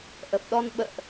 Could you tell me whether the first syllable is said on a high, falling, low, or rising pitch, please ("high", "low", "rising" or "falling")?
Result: low